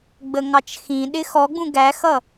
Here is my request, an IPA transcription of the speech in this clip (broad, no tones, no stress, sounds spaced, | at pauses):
ɡ͡b ə ŋ ɑ t͡ʃ x ĩ ɗ ɪ x ɔ ɡ͡b ũ ɡ æ x ʌ